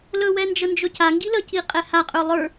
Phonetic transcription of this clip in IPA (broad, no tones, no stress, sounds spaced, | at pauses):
l ɵ w ɛ n d͡ʒ ə n d͡ʒ ɵ c a ŋ ɡ i l ə c i qʼ ɛ h a qʼ ə˞ lˠ ə˞